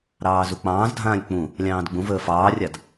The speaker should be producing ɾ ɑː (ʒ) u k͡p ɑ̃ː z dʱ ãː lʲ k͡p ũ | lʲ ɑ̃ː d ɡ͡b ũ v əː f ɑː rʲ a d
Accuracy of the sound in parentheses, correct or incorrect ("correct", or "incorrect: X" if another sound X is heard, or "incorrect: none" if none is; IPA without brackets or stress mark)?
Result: incorrect: z